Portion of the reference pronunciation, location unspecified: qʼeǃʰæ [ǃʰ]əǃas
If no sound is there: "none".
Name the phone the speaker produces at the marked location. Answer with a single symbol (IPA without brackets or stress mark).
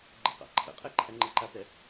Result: ŋ͡ǃ